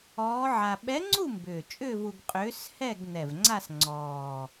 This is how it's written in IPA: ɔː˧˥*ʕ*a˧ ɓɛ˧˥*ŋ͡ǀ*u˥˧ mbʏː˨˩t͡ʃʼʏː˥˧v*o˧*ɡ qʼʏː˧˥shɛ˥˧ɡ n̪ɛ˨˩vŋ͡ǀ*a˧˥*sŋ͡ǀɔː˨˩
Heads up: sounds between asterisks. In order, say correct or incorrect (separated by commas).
correct, correct, incorrect, incorrect